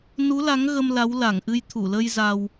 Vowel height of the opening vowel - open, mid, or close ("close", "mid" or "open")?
close